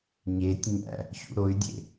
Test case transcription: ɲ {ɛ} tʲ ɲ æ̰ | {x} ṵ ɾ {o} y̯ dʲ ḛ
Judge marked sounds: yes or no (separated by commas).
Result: no, no, yes